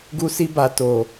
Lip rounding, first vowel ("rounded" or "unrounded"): rounded